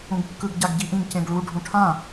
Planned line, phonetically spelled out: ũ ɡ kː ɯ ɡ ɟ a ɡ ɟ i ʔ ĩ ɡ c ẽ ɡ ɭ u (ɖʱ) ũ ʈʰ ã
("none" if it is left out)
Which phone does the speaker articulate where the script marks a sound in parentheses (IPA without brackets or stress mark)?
ɖʱ